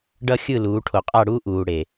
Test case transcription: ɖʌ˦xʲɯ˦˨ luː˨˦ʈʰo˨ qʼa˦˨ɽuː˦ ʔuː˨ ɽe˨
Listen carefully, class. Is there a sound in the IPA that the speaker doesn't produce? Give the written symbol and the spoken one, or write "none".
none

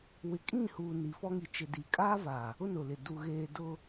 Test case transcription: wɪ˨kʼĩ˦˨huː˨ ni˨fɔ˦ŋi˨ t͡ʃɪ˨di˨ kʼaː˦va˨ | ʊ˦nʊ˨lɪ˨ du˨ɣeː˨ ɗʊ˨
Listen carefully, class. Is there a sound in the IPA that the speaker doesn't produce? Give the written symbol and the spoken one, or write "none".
ɗ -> d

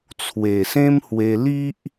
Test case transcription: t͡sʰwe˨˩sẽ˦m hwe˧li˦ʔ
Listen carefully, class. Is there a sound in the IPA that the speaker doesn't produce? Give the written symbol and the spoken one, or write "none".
none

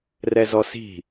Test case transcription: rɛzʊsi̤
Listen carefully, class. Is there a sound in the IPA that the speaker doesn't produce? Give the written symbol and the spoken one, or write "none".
ʊ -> ɔ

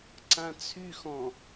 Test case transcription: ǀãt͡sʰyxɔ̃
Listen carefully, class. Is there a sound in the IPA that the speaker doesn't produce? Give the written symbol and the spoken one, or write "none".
none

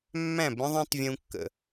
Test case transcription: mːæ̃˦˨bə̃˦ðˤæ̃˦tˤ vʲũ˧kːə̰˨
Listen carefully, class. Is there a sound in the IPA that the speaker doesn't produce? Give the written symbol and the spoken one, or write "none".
none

